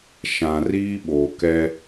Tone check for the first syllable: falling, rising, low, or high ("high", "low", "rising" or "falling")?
low